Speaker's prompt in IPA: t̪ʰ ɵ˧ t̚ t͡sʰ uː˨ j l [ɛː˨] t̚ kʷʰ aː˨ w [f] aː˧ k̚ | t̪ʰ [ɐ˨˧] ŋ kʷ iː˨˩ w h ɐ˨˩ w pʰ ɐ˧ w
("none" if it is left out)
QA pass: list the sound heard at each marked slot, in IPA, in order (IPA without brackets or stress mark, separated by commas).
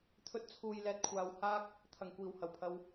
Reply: ɛː˨, h, ɐ˨˩